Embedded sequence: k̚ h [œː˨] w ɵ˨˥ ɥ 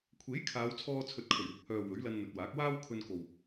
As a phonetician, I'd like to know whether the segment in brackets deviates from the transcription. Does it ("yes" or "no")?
no